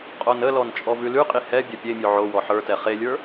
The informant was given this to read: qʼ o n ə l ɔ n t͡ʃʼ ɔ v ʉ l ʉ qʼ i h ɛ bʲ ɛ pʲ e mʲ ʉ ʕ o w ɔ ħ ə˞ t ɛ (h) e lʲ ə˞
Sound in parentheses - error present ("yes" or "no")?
yes